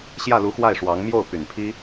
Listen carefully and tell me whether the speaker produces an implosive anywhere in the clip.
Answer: no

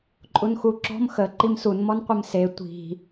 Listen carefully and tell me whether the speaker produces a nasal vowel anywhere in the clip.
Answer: no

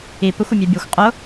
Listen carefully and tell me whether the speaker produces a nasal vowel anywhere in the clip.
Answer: no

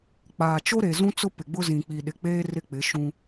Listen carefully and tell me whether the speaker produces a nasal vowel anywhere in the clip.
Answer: yes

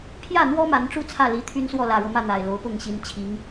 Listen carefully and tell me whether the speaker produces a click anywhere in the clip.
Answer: no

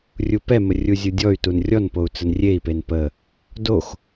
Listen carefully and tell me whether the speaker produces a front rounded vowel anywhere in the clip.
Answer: yes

